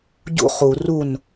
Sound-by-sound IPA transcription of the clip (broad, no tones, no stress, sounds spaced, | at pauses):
ɟ ṵ χ u r u n